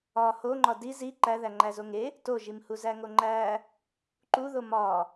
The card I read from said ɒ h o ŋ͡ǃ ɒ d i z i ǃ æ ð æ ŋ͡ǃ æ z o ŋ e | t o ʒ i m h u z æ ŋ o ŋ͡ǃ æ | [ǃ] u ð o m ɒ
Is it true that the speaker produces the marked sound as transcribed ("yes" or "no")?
yes